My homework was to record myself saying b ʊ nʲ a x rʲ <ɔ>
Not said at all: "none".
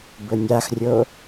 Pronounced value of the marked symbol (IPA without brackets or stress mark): o